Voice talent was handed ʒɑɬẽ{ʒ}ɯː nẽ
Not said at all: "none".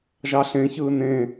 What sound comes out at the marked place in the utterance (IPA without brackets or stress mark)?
ç